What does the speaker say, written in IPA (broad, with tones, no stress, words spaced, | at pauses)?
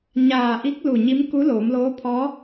ɲaː˧˩ʔi˧˥k̚ lu˧˩ɲi˧˥mku˧˥ loː˩˧mloː˧˥pʰɔː˧˥